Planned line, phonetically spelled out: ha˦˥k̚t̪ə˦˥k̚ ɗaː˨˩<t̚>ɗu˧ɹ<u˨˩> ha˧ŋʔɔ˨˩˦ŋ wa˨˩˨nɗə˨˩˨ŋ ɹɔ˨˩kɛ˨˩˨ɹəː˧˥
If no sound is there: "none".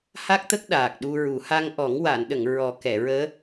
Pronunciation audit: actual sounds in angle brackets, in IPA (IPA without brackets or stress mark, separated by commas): k̚, u˨˩˦